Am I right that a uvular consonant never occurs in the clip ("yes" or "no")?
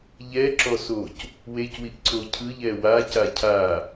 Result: yes